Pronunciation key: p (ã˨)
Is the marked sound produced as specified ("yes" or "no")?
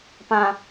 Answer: yes